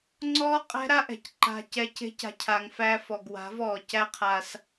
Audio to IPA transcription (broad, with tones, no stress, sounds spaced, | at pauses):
ŋ͡ǀ ɔː˦ qʼ æ̤˦ ɾ a˦ ʔ ɛ̤˨ c ǃ a̤˧ c ɛ˧ c e̤˦ c a̤˧ cʰ a˨ ŋ f æ˧ f ɔ˨ ɡ w a̤˨˦ v ɔː˨ c æ˦ qʰ a˧ s